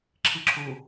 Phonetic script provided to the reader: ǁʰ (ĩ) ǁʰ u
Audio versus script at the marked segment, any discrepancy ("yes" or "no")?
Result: yes